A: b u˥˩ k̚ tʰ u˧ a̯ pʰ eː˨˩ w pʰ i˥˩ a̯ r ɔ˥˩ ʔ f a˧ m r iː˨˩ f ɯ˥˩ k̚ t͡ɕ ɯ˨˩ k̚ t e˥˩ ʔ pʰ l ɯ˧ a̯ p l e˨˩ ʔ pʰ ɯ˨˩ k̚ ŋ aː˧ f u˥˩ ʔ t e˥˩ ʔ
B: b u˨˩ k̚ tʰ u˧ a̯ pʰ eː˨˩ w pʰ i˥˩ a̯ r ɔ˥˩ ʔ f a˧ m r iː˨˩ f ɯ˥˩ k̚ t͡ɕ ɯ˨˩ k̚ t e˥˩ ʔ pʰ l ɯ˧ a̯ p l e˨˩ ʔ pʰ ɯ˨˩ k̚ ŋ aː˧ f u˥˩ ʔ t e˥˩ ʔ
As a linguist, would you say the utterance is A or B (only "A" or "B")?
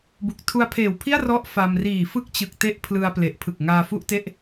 B